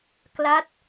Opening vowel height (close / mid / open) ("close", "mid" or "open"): open